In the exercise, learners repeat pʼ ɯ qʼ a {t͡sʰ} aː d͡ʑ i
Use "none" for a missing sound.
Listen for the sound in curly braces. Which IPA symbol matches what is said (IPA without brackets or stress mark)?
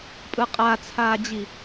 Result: t͡sʰ